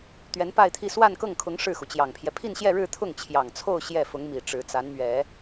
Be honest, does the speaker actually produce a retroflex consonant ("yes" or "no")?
yes